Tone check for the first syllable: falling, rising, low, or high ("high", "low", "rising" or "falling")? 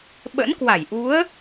rising